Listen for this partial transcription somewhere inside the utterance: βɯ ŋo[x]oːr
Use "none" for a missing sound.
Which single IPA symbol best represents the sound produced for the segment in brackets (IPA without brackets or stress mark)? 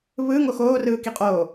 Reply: x